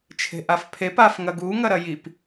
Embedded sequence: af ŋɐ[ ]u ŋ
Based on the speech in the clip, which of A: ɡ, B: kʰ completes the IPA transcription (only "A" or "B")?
A